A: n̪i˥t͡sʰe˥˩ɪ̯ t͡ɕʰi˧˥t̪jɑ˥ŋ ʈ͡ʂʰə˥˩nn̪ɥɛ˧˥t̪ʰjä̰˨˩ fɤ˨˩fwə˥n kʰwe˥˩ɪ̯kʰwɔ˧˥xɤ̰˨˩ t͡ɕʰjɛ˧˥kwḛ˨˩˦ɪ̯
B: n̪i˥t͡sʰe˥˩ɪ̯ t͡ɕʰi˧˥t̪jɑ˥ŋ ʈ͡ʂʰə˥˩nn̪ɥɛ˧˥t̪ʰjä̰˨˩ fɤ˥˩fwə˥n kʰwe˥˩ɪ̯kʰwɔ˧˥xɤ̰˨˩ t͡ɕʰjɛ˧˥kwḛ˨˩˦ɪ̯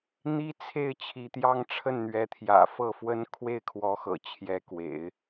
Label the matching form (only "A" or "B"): B